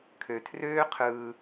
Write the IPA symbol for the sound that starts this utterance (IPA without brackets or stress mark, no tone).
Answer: kʰ